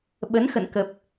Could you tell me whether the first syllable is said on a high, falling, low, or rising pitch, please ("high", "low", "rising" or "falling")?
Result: rising